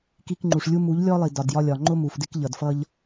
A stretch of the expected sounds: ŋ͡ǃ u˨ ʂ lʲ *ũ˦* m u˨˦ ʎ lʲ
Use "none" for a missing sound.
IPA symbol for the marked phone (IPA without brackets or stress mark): u˦